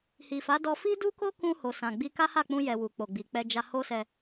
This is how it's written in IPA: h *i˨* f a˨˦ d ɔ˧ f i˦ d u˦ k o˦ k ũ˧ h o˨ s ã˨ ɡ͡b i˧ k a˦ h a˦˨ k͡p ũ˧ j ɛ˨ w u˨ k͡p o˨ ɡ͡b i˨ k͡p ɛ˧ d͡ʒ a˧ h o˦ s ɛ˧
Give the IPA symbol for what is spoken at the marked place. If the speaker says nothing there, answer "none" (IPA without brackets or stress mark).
i˨